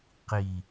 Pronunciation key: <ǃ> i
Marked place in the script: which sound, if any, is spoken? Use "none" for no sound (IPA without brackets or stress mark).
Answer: q